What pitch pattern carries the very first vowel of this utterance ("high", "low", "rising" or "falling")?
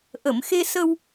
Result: low